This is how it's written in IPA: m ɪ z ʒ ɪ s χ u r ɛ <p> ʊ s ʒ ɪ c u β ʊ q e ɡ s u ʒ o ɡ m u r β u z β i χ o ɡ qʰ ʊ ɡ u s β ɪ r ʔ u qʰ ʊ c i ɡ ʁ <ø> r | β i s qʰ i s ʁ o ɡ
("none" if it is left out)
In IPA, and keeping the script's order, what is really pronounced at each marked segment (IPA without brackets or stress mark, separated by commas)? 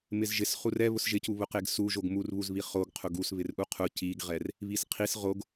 β, ɛ